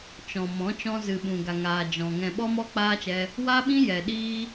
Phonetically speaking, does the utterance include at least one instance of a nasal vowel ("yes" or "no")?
yes